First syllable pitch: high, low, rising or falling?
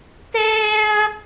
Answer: high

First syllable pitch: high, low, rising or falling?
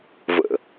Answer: low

